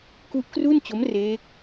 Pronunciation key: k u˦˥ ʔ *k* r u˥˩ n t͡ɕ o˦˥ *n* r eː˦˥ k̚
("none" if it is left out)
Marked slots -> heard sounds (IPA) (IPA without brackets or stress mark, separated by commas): k, m